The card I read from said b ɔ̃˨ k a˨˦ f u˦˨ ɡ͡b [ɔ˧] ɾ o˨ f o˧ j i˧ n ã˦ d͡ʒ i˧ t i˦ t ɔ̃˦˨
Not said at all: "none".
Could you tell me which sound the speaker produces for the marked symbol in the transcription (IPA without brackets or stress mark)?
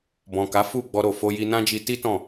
ɔ˧